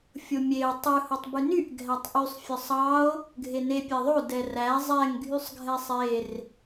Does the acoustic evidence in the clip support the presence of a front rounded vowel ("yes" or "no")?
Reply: yes